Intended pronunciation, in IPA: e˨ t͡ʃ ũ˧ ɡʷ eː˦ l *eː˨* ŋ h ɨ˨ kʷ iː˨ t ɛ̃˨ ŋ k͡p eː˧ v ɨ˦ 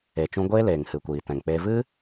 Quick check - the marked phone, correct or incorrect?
correct